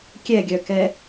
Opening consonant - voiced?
no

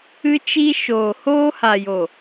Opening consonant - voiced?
no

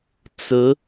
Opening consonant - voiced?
no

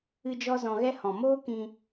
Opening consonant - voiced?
yes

